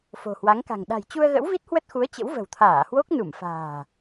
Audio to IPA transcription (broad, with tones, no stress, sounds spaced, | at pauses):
f o̤˨˩ h w a˨˦ ŋ k a̤˨˩ ŋ ɗ a̤˨˩ j t͡ɕ u˧ ə̯ ɣ ə̰˧˥ w v i˦˥ t̚ h w ə˦˥ t̚ x u˨˦ ə̯ t͡ɕ ə̰˧˥ w v ə̤˨˩ w t̪ʰ aː˧˩ h w o˦˥ k̚ n u˧˩ m f a̤ː˨˩